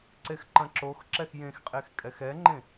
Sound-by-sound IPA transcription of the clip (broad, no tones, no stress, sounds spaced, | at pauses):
ǀ e x ǃ ɐ̃ ǁ o x ǁ ɛ x j ẽ x qʼ e x kʼ ɛ x ɛ ŋ͡ǃ ẽ